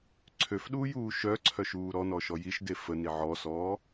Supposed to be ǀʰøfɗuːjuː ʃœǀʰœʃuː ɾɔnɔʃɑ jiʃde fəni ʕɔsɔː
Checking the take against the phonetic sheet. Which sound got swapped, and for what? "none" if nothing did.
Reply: ɑ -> ɔ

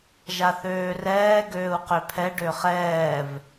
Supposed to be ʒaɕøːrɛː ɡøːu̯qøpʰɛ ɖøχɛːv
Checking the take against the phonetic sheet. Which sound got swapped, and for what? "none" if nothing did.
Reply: ɕ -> θ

